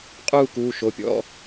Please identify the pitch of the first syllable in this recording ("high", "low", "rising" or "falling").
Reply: falling